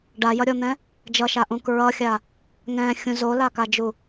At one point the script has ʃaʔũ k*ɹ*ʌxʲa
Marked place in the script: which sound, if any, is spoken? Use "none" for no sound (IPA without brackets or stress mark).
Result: ɹ